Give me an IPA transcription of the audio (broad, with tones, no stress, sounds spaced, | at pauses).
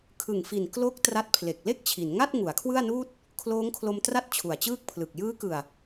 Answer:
kʰ ɯ˨˩ ŋ f i˨˩ n k l o˦˥ k̚ t r a˦˥ t̚ pʰ l e˨˩ k̚ l e˥˩ k̚ t͡ɕʰ i˩˦ n ŋ a˥˩ t̚ ŋ u˩˦ a̯ kʰ w ɯ˥˩ a̯ n uː˥˩ t̚ | kʰ l oː˦˥ ŋ kʰ l o˧ m t r a˥˩ t̚ t͡ɕʰ u˨˩ a̯ t͡ɕ ɯː˥˩ k̚ pʰ l ɯ˨˩ k̚ j ɯː˦˥ k ɯ˨˩ a̯